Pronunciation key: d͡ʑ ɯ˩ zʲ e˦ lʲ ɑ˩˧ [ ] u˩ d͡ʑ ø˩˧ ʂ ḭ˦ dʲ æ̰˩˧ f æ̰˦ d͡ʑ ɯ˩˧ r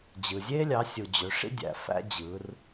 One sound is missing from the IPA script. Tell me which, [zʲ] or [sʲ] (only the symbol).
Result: sʲ